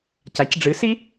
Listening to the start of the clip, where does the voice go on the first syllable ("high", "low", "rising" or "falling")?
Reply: rising